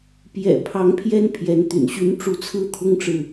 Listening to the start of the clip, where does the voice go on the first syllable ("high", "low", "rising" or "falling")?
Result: low